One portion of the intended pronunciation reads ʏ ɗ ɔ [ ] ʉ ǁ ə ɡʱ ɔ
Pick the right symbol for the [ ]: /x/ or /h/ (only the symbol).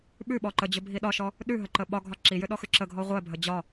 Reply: x